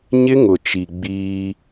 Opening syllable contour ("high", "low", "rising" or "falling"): high